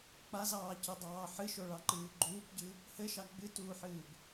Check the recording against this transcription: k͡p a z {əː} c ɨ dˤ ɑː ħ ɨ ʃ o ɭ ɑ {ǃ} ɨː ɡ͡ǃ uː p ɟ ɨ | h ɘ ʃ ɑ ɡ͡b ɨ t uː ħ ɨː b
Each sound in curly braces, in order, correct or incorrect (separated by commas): incorrect, correct